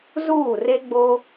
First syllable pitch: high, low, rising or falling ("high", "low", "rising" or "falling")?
falling